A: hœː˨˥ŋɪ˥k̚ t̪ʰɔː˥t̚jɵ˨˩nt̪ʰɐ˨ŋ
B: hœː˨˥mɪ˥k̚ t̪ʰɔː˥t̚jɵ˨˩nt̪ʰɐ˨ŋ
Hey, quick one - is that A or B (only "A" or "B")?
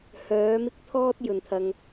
B